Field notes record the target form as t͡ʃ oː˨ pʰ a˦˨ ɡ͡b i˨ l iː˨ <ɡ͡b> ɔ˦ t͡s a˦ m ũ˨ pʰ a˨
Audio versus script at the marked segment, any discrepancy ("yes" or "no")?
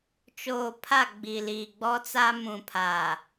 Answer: no